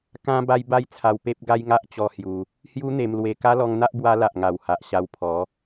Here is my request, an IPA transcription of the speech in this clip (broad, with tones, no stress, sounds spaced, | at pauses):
k ã˦ b a˦ j b a˦ j t͡sʰ a˧ w p e˦ p̚ ɡ a˦ j ŋ a˦ ʔ t͡ɕ ɔ˦ h j u˧ | h j u˦ n̪ e˧ m l w e˧ k a˦ l ɔ˧ ŋ n̪ a˦ ʔ b w a˧ l a˨ ʔ ŋ a˨˩ w h a˨ ʔ ɕ a˧ w pʰ ɔ˨˦